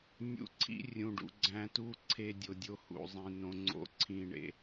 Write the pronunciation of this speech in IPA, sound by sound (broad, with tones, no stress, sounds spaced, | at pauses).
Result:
nʲ ṵ˧ ǀʰ ḭ˦ rʲ ũ˨ ɖ ṵ˨ ɡ͡ǀ æ̃˧ t u˦ ǀʰ e˧ dʲ o˨ dʲ o˧ h ṵ˨ zˤ ĩ˨ n õ˧ ŋ͡ǀ o̰˧ ǀʰ ĩ˧ ɳ ḛ˧